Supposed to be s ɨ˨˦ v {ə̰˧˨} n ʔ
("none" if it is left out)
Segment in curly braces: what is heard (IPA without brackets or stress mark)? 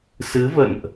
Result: ə̰˧˨